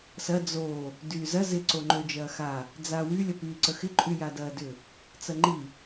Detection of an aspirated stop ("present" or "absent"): absent